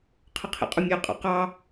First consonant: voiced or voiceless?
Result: voiceless